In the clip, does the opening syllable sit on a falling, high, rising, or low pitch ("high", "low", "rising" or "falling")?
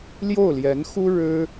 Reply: falling